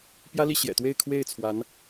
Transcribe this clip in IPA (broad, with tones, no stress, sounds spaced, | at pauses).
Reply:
p j ä˥ l i˥˩ ɕ j ɛ̰˨˩ t̪ w e˥˧ ɪ̯ kʰ w e˥˩ ɪ̯ t͡sʰ w a˧˥ n